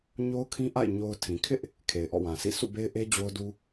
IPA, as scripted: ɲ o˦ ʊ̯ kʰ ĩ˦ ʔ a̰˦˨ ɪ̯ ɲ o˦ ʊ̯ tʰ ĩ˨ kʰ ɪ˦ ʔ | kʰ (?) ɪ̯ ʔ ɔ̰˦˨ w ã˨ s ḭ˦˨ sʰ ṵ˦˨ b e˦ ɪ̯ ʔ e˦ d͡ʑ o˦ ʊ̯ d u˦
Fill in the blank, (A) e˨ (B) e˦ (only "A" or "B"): A